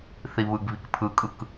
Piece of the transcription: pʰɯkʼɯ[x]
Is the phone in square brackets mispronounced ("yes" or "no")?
yes